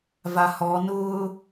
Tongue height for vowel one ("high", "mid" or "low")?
low